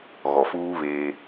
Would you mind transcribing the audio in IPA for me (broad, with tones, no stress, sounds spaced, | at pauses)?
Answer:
ɣ ɔ˨ f uː˦ β eː˦